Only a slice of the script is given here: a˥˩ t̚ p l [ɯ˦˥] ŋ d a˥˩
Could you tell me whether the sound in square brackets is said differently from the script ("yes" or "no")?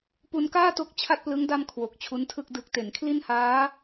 no